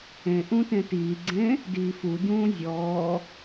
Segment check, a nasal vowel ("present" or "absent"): present